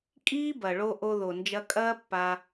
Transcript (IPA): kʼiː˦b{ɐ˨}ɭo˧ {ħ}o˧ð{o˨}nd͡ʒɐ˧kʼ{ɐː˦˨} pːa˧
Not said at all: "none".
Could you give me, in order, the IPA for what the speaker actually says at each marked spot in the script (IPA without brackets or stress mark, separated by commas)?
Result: ɐ˨, ʔ, o˨, ɐː˦